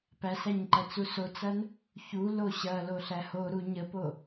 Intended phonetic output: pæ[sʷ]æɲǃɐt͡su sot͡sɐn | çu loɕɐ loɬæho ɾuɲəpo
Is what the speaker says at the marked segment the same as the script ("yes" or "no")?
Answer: no